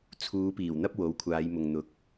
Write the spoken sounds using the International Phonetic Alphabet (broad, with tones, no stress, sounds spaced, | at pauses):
t͡sʰ uː˨˧ p iː˨˩ w n̪ ɐ˥ p̚ w o˨˥ w kʷʰ aː˨˧ j m ʊ˨ ŋ n̪ ʊ˨ k̚